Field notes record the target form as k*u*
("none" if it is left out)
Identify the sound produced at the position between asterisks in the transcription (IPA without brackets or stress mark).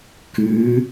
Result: ʉ